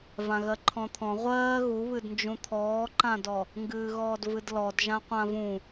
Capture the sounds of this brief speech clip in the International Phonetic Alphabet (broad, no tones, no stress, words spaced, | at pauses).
vãɣɜǃʰɔ̃t̪ʰɔ̃ ʁʷɜː ɣuβɨdnd͡ʒũ t̪ʰɔːǃãdɔ | ŋɡɨːɣɔːdvɨdlɔd ʒãqʷãvũ